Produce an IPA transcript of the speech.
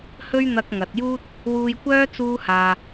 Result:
h ɵ˥ ɥ n̪ ɐ˧ k̚ ŋ ɐ˨ t̚ j uː˥ t̚ | w uː˧ j kʷ œː˥ t͡s uː˥ h aː˧

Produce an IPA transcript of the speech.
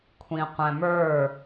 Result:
kʷʰ ĩ qʷ æ̃ m ə˞

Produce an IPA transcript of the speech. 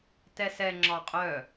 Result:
t ɛ s ɛ ŋ͡ǁ ɒ qʼ œ

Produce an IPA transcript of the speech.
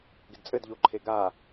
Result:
ɡ ɪ d t͡sʼ ɘ d ʎ o ǃʰ e ɡ a

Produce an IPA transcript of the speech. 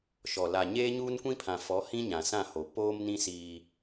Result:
ʃ ɔ˨ l a˨ ɲ eː˦ ɲ uː˦ n kʷ ĩ˦ pʰ ã˨ f ɔ˨˦ h ĩ˦ ɲ ã˨ s ã˦˨ h o˨ p oː˦ m n ĩ˦ s iː˦

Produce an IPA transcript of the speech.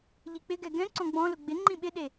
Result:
ʎ i k͡p ɪ ɡ ɛ ɡ ɛ̃ ǀ ɔ̃ ɡ͡b ɔ̃ l ʊ ɡ͡b ɪ ŋ͡ǃ ĩ ɓ ɪ ɗ e

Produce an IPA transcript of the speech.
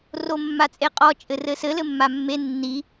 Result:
r o mː a t͡sʼ e qʼ ɔ t͡ʃʼ ɘ r ɘ s ɘ l ɘ mː a mː e nː i

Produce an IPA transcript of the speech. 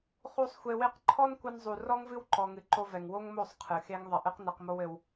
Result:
χ u˦ sˤ xʷ e˧ w e˦ q ǃʰ ɔ˦ n kʷ ɐ˧ n zˤ u˨ r ɔ˦ ŋ v ɨ˦ w ǃ ɔ˧ ŋ ɨ˧ ǃ o˧ v ɛ˨ ŋ w o˦ ŋ m o˦˨ sˤ qʰ ɨ˨ x e˦ ŋ ðˤ ɐ˧ ʔ ɨ˦ q n ɛ˧ q m o˦ w ɘ˧ w

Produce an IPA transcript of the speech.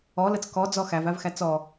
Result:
ɔ l ə t͡s k ɔ d͡z ɔ x æ v æ v x æ t͡s ɔ

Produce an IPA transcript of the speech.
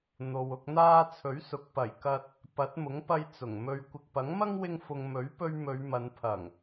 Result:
n̪ o˨ w ʊ˧ k̚ n̪ aː˧ t͡sʰ ɵ˨˥ ɥ s ʊ˨˥ k̚ p ɐ˨˩ j k ɐ˧ t̚ | p ɐ˨˥ t̚ m ʊ˨˥ ŋ p ɐ˧ j t͡s ʊ˨˩ ŋ m ɵ˧ ɥ kʷ ɪ˨ k̚ p ɐ˨˥ ŋ m ɐ˥ ŋ w ɪ˧ ŋ f ʊ˨ ŋ m ɵ˨˥ ɥ p ɵ˧ ɥ m ɵ˨˧ ɥ m ɐ˨˧ n pʰ ɐ˨˩ ŋ

